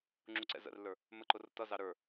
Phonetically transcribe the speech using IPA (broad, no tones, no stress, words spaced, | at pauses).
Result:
ŋ͡ǁuǀɛ̰zə̰rlːə˞ | məǃʊr tʌzɑ ɾə˞